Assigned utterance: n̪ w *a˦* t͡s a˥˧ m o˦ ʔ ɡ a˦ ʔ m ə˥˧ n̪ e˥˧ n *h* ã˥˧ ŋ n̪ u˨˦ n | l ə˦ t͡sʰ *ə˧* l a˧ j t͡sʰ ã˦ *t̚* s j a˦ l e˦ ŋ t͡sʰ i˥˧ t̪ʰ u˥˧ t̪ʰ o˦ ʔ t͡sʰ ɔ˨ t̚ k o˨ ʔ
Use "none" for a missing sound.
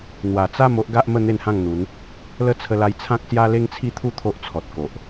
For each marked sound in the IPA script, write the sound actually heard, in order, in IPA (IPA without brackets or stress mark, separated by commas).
a˨˩, h, ə˧, k̚